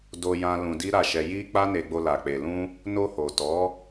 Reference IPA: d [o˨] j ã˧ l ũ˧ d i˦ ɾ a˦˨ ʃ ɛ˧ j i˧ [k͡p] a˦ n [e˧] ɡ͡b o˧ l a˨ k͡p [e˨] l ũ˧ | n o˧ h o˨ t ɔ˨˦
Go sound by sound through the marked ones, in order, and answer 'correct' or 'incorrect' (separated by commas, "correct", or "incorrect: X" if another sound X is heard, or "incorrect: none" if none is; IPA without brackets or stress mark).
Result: incorrect: o˧, correct, correct, correct